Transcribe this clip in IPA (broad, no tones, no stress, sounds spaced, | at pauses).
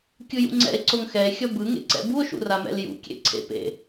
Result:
kʲ ɯ j ṵ ŋ͡ǀ ɛ̰ e̯ ǀ o ŋ x ɛ e̯ xʲ ʌ b ɯ ŋ ḛ ǀ ɛ̰ b u o̯ ʃ ṵ r a m ɛ̰ l j ṵ kʲ ḛ ǀʰ ḛ p ḛ